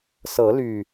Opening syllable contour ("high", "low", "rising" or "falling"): rising